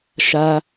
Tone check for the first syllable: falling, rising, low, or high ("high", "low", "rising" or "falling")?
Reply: high